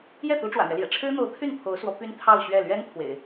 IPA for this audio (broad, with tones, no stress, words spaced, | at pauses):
jɛ˥˩ t̪u˧˥ʈ͡ʂwä̰˨˩n̪ɥɛ˦ljɛ̰˨˩ ʈ͡ʂʰɻ̩˥n̪o˧˥ʊ̯t̪ʰy˥˩n pʰo˧˥ʊ̯swɔ˧˥py˥n t̪ʰɑ˥˧ʊ̯ɕɥɛ˥˩ lɥɛ˥n pʰwḛ˨˩˦ɪ̯